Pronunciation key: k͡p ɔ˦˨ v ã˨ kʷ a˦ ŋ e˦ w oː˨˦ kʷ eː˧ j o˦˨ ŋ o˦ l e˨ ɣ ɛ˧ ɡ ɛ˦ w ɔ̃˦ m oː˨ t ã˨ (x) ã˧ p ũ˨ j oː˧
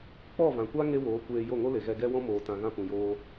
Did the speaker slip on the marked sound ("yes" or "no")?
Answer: yes